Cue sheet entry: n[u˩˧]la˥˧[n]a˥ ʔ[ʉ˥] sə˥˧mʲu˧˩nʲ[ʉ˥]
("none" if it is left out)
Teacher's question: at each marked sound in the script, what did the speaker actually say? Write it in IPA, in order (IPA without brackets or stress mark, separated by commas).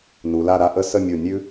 u˩˧, ɾ, ə˥, ʉ˥